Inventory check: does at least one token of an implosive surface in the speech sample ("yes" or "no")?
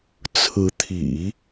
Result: no